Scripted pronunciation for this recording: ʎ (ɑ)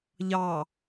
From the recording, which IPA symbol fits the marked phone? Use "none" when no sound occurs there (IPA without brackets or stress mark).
ɑ